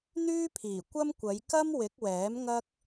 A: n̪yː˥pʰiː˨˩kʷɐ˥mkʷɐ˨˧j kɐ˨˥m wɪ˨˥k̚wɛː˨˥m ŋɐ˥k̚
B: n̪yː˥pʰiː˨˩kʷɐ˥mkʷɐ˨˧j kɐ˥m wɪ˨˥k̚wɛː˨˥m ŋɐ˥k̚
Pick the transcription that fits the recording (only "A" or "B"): B